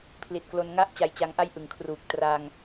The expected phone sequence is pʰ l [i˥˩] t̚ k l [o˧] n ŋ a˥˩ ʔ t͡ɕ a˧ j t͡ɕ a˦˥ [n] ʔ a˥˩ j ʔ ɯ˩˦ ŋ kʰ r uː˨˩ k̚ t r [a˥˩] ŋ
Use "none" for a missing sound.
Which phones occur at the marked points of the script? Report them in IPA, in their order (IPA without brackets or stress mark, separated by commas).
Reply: i˨˩, o˧, ŋ, a˧